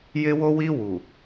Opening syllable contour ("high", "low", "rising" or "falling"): high